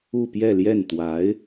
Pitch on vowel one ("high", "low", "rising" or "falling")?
falling